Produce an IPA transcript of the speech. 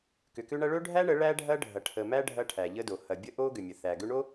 k ʏ˨ k ʏ˦ ɳ ɐ˦ ɭ ɵ˦ ɖʱ æ˦ ɳ ə˨˦ ɭ æ˦ ɖʱ ɐ˦ ɖʱ ɐ˨ ʈʰ ə˨ m æ˦ ɖʱ ɐ˦ ʈʰ æ˨ ʎ ə˦ d o˨ h ɐ˨ bʲ ə˦ ʔ o˦ ɡ ʏ˨ mʲ ə˨ θ æ˨ ɡ ʏ˦ ɳ o˦

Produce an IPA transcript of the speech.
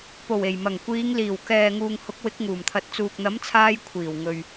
p o˨˩ w e˨˩ j m ɐ˨˩ ŋ kʷ iː˨˧ ŋ l iː˨˩ w k ɛː˨ ŋ uː˨ ŋ h ʊ˨˥ k̚ w ɪ˨˥ k̚ ŋ uː˨˩ m t̪ʰ ɐ˨˥ t̚ t͡s uː˨ k̚ n̪ ɐ˨˥ m t͡sʰ aː˧ j kʷʰ iː˨˩ w ŋ ɵ˨ ɥ

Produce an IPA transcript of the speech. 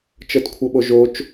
t͡ʃ ɤ t kʷʰ ɤ ɓ o ʒ o t͡ʃ

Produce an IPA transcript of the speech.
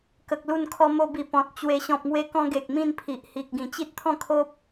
k ə˨ k̚ l u˥˧ n kʰ ɔ˦ m o˧ b i˨˩ p ɔ̃˨ t̚ t͡ɕ w e˧ ɕ ɔ̃˨ p̚ ŋ w e˧ k ɔ̃˧ ɡ e˨ k̚ m ĩ˥˧ n pʰ i˨ ʔ h i˨ k̚ ɡ ĩ˨˩ t͡ɕ i˦ t̚ t̪ʰ ɔ̃˥˧ kʰ o˦ p̚

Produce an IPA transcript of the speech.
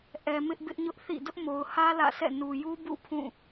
ʔ ɛ˨ m ɪ˦ ʔ b ɪ˦ ʔ ɲ ʊ˦ ʔ θ ḭ˦˨ d ʊ˦ ʔ m o˨ ʊ̯ h ä˦ l ä̰˦˨ s ɛ̰˦˨ n u˨ j u˦ b ṵ˦˨ pʰ ũ˦˨

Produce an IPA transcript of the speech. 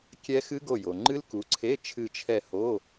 kʲ ɛ˦˥ x ɨ˦˥ ɡ o˦˨ j o˨ ŋ͡ǃ ɨ˦˥ l k u˨˦ ǀʰ e˧˥˧ t͡ʃʰ ɨ˦˨ t͡ʃʰ ɛ˦˨ h o˧˥˧

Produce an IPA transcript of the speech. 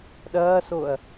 ɗ ɐː s o ɐ̯

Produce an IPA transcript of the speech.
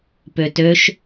p ø t ø ʃ

